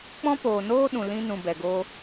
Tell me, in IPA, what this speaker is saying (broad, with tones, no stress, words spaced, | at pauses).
k͡pɔ̃˦poː˨noː˦ ɗũ˨lĩ˧nũ˨ bɛ˨ɡoː˧